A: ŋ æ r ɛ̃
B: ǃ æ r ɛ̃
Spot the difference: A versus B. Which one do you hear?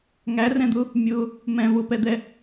A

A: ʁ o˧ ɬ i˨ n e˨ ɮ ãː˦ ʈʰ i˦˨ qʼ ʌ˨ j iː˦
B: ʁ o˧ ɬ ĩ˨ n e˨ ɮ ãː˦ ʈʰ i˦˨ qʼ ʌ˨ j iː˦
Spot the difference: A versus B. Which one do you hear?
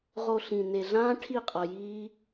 B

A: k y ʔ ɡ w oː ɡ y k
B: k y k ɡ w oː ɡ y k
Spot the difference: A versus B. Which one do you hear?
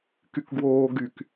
B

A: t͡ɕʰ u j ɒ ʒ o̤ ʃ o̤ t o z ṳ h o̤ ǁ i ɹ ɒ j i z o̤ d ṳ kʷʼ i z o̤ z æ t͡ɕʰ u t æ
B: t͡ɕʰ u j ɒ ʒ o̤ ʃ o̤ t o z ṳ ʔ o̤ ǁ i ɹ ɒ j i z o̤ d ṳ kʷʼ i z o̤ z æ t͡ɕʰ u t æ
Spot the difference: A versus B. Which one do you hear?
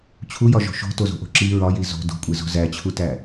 B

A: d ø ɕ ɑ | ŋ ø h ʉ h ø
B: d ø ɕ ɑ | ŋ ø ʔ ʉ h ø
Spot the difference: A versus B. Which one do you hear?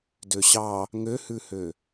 A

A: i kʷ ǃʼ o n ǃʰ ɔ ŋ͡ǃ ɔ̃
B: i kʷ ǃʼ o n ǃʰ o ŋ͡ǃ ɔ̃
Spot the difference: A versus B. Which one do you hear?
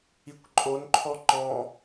A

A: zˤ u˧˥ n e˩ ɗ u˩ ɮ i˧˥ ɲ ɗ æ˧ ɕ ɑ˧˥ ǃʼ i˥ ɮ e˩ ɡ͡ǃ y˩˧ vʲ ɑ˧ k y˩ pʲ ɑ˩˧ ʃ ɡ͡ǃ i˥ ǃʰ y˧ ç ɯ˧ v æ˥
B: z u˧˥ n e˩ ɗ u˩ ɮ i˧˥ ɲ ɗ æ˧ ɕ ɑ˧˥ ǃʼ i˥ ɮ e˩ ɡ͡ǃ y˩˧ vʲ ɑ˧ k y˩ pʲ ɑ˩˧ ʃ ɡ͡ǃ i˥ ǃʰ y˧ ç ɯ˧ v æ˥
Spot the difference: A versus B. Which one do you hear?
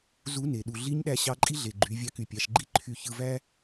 B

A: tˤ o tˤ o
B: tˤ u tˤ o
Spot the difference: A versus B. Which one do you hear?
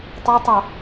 A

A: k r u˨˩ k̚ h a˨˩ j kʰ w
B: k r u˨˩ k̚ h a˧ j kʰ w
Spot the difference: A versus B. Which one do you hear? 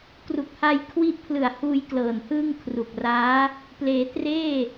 B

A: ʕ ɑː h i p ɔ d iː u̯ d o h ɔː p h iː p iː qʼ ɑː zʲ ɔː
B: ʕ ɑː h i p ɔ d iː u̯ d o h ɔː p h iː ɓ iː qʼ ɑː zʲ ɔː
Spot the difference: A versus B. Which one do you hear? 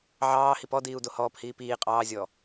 A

